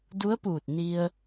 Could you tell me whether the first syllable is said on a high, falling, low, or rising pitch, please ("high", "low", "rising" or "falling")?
rising